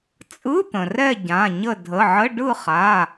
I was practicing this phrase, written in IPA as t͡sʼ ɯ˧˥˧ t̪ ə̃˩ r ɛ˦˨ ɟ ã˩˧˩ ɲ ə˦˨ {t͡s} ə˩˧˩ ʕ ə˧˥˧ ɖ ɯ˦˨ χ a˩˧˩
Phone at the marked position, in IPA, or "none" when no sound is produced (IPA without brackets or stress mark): dʱ